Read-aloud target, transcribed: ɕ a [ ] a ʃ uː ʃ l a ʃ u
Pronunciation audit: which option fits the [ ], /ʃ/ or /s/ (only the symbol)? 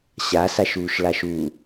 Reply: s